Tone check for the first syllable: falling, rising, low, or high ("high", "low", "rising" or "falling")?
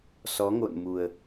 rising